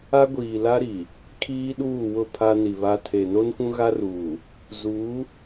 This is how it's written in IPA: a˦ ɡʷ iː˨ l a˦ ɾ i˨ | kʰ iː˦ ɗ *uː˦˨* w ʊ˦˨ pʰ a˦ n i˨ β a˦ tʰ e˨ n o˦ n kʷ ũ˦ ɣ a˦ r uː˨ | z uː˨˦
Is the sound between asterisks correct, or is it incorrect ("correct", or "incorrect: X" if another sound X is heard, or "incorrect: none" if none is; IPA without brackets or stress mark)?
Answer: correct